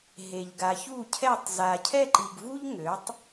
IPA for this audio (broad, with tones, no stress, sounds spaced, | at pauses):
ɦ e˨ ʎ ɡ a˨ ç u˥˩ cʰ ɛ˥˩ tˤ z a˨ cʰ ɛ˥˧ ǃ i˨ ɡ v u˥ ʎ ŋ ø˩˥ tˤ